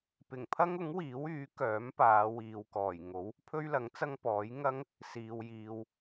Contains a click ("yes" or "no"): no